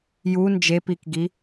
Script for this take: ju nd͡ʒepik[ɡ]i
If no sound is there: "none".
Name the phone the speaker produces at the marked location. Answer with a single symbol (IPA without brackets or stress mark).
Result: ɡ